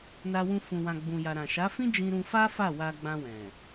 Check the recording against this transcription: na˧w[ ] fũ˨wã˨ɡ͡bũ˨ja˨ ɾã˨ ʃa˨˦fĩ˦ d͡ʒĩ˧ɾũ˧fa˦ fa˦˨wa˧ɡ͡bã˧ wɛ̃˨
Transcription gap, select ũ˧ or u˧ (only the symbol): ũ˧